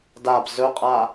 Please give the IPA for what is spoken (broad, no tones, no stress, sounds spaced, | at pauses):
d a b z ɵ qʼ a